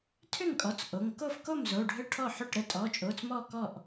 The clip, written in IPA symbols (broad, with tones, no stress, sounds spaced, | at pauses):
tʰ ʏ˥˩ ŋ kʼ ɔ˩˧˩ t͡s ʔ o˩˧˩ ŋ k o˥˩ f k o˥˩ m z o˩˧˩ ɖʱ ə˥˩ ʈʰ ɔ˥˩ ħ ʏ˥˩ ʈ ɾ ə˥˩ tʼ ɔ˩˧˩ t͡ʃʼ o˩˧˩ t͡s m ɔ˥˩ k ɔ˥˩ ʔ